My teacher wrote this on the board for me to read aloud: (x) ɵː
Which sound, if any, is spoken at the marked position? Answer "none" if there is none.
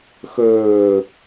x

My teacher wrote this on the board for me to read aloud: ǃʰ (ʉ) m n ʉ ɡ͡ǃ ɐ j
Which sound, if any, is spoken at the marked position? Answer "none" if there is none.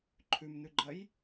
ʉ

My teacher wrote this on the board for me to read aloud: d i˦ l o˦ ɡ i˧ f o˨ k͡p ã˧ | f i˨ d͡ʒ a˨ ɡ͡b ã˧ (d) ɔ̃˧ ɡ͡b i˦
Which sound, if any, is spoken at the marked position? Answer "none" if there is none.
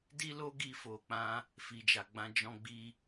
d͡ʒ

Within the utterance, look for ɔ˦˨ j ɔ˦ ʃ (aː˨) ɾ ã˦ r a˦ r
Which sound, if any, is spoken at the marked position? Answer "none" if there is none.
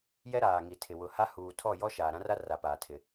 aː˨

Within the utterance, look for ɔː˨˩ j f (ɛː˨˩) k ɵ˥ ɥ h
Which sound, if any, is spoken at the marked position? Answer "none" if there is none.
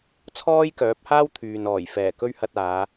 ɛː˨˩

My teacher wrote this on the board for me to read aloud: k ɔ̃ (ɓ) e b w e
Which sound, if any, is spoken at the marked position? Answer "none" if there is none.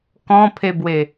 pʰ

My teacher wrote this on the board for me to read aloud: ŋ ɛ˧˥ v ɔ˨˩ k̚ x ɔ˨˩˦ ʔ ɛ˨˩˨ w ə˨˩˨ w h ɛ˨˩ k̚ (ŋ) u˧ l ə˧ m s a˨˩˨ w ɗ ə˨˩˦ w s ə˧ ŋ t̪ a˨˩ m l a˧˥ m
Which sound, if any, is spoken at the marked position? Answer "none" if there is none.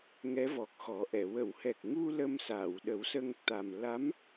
ŋ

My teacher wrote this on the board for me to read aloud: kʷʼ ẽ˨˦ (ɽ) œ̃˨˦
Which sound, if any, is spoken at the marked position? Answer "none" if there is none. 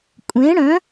ɽ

